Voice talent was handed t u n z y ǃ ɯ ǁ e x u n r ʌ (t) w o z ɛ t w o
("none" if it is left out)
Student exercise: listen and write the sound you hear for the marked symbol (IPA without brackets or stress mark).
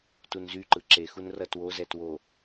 t